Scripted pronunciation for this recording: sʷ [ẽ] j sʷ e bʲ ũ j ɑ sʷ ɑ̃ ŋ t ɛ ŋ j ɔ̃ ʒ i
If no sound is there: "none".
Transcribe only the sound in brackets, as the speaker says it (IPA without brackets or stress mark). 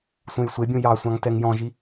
ẽ